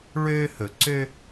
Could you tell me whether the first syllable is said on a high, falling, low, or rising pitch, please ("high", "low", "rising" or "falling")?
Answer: high